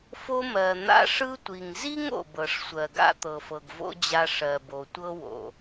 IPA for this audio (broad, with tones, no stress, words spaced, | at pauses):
fo˦mɜ˨n̪a̰˦ ʂɯ˦tʷi˨ŋzi˥ŋ o̰˨bɤ˨ʂsʷɜ˨ɡa̰˦ t̪ɤ˨fɤ˨ɡvo̰˥d͡ʑa˦ ʂɜ˨bo˨tʷɤ˥wo̰˩